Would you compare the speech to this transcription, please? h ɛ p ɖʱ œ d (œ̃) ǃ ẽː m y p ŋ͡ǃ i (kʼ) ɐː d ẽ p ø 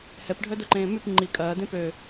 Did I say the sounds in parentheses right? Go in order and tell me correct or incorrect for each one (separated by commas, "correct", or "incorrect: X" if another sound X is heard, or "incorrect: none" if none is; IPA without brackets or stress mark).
incorrect: œ, correct